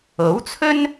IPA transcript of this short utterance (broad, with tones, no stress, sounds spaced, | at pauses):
o˨˥ w t͡sʰ ɵ˥ n